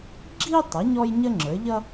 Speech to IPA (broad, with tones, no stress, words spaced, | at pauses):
ɡ͡ǁi˥tˤʌ˩˥ ɲɔ˥j ɲə˥ŋ͡ǁə˞˩˥ʎʌ˥